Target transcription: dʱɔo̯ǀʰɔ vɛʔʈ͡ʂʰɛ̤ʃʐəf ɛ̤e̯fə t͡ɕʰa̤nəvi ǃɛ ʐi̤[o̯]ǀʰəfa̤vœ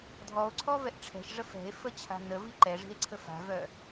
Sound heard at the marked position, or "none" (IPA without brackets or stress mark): e̯